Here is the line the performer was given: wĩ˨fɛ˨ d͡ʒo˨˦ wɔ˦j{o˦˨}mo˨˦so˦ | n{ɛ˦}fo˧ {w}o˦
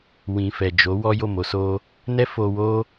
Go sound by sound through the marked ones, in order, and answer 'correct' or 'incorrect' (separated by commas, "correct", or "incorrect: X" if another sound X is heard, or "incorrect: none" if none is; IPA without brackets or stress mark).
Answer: correct, correct, correct